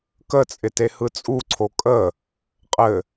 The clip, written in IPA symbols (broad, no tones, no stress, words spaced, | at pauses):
kət͡sʼɪ tehɯt͡sʼuǀʰo kʼə | qʼɘ